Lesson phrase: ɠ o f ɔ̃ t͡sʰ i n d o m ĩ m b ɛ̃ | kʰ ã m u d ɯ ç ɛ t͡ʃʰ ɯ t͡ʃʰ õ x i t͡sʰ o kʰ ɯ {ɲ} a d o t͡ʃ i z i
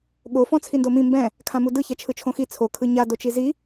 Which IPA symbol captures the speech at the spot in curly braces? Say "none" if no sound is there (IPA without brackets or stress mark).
ɲ